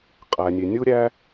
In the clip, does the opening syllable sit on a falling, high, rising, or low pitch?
low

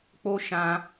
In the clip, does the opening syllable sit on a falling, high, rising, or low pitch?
high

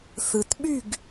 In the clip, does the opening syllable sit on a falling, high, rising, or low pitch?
low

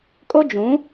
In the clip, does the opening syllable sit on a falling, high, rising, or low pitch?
high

